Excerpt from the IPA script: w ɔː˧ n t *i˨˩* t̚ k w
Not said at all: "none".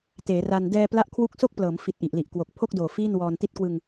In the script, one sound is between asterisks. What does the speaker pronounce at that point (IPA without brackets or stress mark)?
i˦˥